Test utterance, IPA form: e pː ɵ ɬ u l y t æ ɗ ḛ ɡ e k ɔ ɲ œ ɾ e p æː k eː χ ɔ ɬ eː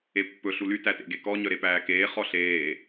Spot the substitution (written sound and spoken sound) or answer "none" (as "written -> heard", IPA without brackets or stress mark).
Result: ɗ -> t